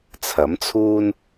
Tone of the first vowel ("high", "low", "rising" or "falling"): rising